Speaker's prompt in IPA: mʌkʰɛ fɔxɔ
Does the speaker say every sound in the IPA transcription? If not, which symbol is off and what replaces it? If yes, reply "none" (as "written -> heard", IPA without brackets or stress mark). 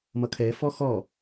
none